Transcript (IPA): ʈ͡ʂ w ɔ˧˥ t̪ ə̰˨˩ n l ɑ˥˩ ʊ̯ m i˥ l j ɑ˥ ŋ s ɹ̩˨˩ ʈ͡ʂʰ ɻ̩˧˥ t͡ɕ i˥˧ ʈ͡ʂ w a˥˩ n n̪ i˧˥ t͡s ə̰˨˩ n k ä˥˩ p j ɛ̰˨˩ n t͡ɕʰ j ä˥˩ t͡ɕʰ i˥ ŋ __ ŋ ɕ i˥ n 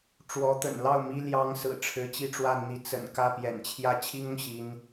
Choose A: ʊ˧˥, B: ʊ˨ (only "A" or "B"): B